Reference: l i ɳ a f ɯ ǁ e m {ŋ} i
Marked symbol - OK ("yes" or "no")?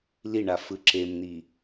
no